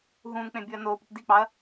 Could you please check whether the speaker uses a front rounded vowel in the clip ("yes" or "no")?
no